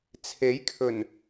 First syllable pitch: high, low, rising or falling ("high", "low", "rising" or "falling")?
rising